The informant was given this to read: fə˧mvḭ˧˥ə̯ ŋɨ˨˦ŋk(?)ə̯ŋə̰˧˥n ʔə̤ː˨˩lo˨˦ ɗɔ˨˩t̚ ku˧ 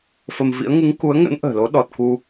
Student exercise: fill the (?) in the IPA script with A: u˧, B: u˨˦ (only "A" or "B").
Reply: B